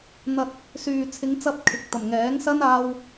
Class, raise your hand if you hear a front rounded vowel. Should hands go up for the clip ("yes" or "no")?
yes